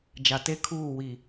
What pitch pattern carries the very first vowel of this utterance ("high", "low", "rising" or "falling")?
low